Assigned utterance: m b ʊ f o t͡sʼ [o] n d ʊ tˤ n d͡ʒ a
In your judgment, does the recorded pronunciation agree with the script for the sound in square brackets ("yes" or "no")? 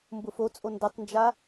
yes